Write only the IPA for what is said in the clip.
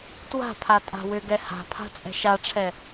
t w a̤ pʰ a tʼ a̤ w ʏ ɡ ɛ h a̤ pʰ a̤ t͡sʼ ɛ̤ ʃ a ʈ͡ʂʰ ɛ

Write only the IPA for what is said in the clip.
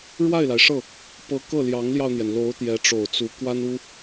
ɻ w a˥˩ ɪ̯ l a˩ ɪ̯ ʂ ɤ˥˩ | p ɤ˧˥ k ɤ˥˩ l j ɑ˧˥ ŋ l j ɑ˧ ʊ̯ n̪ j ɛ˩ n l o˧˥ ʊ̯ t̪ j ɛ˧˥ ʈ͡ʂ o˨˩ ʊ̯ t͡s u˧˥ k w a˥ n u˥

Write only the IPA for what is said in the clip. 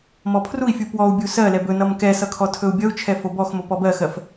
m ɔ pʰ r u i̯ fʲ u p w ɔ u̯ bʲ u s ɜ l ɛ b ɵ n ʌ m k ɛ s ʌ kʰ ɔ tʰ ɵ u̯ bʲ ʌ u̯ t͡ʃʰ ɛ f o b ɔ x m o p ɔ b ɜ x ɜ f

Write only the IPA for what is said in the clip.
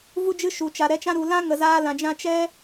v u˦ d͡ʒ ɨ˦ ʃ u˧ t͡ʃ a˧ ɾ ɛ˦ t͡ʃ ã˦ ɾ u˧ l ã˦ ŋ ə˧ z aː˦ l ã˧ d͡ʒ ã˦ t͡ʃ ɛ˦

